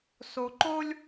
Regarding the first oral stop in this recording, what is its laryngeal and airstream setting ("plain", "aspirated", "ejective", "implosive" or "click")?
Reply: click